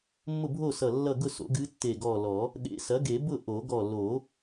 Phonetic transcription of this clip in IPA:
mː ʊ˥˨ bʱ o˥˨ s ʌ˧˩ lː ʌ˥˨ ɡ ʊ˥˨ s o̰˩˥ ɡ ɨ˧˥ tː e˧˩ ɡ ɔ˧˩ l ɔ˨˩˦ | ɗ ḛ˨˩˦ s ɐ˩˥ ɡ e˨˩˦ b ʊ˥˨ ʔ o˨˩˦ ɡ ɔ˧˩ l o˨˩˦

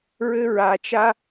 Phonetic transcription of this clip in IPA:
ɹ ɘ˦ ɹ a˨ t͡ʃ a˦

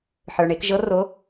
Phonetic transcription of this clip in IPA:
ħ ə˞˩ ɳ e˩˧ k ʒ ɤ˧˥ r o˧˥

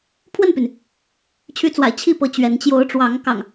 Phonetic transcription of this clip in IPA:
pʰ w ə˥˨ n p y˩ n | t͡ɕʰ y˨˦ t͡s w a̰˨˩ ɪ̯ t͡ɕʰ i˥˨ p ɤ˨˦ t͡ɕ ɥ ɛ˨˦ n t͡ɕ j o˨˦ ʊ̯ ʈ͡ʂ w ɑ˨˦ ŋ k ɑ̰˨˩ ŋ

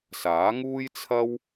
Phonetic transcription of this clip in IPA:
s aː˨˥ ŋ uː˥ j t͡sʰ ɐ˥ w

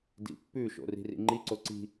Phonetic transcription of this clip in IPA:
d ḭ pː ʉ ʃ o̰ r i̤ r ḭ ŋ͡ǃ i ǀ o ǀ i̤

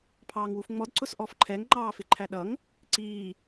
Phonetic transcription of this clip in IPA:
pʰ ɑː ŋ w u f ŋ͡m ɔ d ǀ ʊ s ʔ ɔ f ǃʰ ɛ ŋ ŋ͡ǃ ɑː f ɪ ǃʰ æ ɗ ʌ ŋ | ǀ iː

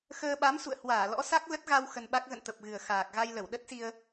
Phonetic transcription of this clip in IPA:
x əː˧ ɓ a˨˦ m s ṵ˧˨ ə̯ h w aː˧˩ l ɔ̰˧˥ s a˦˥ k̚ l ə˦˥ t̚ ɣ a˧ w x ə˧ n ɓ a˦˥ k̚ ɣ ə̰˧˨ n t̪ ə˨˩ p̚ ɣ ɨ˨˩ ə̯ x aː˨˩ k̚ ɣ a˧ j l ə˧˩ w ɗ ə˦˥ t̚ s i˧ ə̯

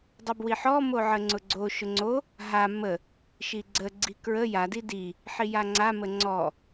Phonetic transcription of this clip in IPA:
dˤ ə b w i ħ ɔ m o ʕ ə ŋ͡ǀ ʊ ɡ͡ǀ o ʃ ʊ ŋ͡ǀ o | ɦ a m ə | ʃ i ɡ͡ǀ ə ɡ͡ǀ i k ɹ ə j a d i d i | ħ i j a ŋ͡ǀ a m ə ŋ͡ǀ ɔ

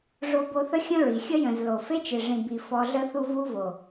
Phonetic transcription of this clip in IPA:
ʐ o˧ b o˧ θ ə˦ xʲ ə̃˦ ɹ i˨ xʲ ə˦ j ə̃˨ z l o˨ f e˦ t͡ʃ e˨ ʐ ĩ˨ b i˨ f ɔ˧ ɮ ə˦ θ u˦ v u˦ v o˨

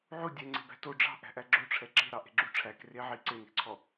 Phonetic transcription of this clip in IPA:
ʕ u dʲ ɛ ŋ͡ǀ e̤ b æ̤ t o ɖ͡ʐ ɑ̤ ʔ æ̤ ʔ æ ɡ͡ǁ o ʈ͡ʂʰ ɛ ǁ e̤ ɾ ɑ ʔ e̤ ɡ͡ǁ u ʈ͡ʂʰ æ k r e ʕ i ǀ e n e̤ ǀʰ ɔ

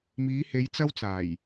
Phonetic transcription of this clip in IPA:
m iː˨˧ h e˨˧ j t͡s ɐ˥ w t͡s aː˨˩ j

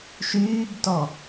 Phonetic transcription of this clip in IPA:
ʃ yː b t ɔ

